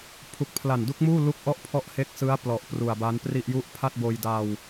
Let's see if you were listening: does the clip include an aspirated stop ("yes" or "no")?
yes